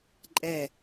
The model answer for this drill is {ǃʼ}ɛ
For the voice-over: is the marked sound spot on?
yes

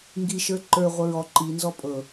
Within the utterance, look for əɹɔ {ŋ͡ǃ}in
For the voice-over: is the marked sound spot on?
no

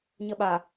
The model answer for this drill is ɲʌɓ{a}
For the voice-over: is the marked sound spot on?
yes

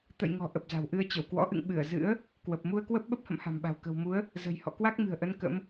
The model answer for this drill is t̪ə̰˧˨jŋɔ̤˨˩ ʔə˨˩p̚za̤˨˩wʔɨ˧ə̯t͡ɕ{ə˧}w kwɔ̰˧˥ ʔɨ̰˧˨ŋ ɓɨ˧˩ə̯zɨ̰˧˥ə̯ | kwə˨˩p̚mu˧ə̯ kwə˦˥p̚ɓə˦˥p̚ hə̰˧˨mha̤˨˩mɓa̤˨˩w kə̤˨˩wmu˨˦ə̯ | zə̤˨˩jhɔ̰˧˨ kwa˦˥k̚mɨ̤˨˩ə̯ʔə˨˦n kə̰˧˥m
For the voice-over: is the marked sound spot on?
no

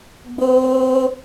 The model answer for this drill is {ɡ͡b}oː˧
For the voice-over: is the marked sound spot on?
yes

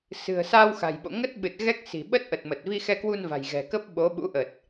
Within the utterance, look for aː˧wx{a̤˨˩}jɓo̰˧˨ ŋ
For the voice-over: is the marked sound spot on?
yes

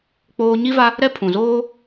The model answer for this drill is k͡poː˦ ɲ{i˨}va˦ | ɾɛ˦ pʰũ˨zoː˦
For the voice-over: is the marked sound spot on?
no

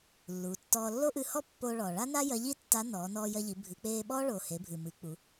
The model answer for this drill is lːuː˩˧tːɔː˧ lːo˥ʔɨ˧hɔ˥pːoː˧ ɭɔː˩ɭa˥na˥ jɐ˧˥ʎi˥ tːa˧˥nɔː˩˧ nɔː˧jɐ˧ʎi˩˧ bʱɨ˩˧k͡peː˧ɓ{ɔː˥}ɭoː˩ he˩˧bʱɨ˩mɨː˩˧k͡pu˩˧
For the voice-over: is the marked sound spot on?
yes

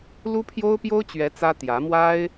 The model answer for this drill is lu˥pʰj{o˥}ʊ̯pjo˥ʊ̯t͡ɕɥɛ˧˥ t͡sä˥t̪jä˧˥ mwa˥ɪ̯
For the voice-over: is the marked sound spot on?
yes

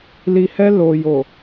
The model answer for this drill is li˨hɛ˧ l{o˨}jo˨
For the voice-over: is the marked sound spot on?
yes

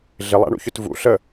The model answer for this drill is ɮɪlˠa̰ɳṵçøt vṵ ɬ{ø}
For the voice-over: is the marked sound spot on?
no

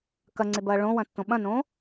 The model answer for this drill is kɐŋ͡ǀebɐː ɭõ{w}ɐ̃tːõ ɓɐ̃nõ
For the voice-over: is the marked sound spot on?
yes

